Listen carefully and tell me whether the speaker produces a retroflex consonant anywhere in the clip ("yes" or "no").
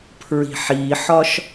no